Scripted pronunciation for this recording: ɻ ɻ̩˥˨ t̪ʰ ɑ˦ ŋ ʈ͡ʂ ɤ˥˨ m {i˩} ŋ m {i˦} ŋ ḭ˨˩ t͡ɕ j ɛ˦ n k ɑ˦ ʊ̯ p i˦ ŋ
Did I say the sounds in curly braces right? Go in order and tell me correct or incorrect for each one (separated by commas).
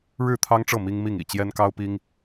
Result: incorrect, incorrect